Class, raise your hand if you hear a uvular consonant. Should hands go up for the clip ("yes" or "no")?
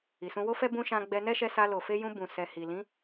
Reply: no